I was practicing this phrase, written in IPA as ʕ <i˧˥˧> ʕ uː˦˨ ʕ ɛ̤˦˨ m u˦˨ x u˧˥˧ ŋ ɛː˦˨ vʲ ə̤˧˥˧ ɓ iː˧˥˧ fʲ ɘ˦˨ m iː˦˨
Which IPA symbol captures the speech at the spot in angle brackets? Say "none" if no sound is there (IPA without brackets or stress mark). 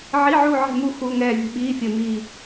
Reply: i˧˥˧